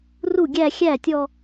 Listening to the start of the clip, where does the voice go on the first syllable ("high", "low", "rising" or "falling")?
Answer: falling